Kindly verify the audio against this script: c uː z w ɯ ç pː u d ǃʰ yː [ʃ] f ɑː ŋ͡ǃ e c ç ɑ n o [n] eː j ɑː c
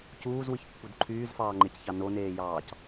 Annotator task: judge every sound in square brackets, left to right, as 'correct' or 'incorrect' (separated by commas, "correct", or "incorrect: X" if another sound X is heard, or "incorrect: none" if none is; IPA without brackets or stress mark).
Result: incorrect: z, correct